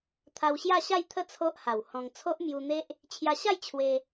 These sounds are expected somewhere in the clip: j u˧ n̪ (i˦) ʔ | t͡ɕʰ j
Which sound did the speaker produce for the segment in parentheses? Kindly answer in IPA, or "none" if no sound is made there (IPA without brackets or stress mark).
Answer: e˦